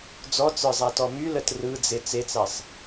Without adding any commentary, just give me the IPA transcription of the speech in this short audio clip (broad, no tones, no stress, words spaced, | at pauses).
d͡zɔt͡sə˞zˤatɔ mylət rɯd͡ze t͡set͡sasˤ